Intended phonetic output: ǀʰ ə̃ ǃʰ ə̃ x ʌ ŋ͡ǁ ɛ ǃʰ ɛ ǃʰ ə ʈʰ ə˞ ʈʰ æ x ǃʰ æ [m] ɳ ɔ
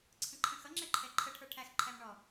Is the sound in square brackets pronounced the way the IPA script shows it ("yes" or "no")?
yes